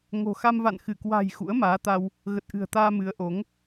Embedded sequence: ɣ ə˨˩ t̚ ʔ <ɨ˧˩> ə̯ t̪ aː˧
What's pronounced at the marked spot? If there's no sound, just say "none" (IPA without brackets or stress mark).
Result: ɨ̤˨˩